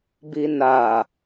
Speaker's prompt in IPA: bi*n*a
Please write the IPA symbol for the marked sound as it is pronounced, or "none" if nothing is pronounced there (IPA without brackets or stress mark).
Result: n